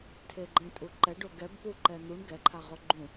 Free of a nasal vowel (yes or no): no